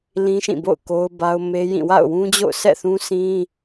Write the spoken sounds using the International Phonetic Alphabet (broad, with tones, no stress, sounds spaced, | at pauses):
l ĩ˦ ʃ ĩ˦˨ b o̰˦˨ ʊ̯ k o˦ ʊ̯ b a˦ ʊ̯ m e˦ j ĩ˦˨ w a̰˦˨ ʊ̯ w ũ˦ d͡ʑ o̰˦˨ ʊ̯ sʰ ɛ̰˦˨ θ ũ˦ s ĩ˦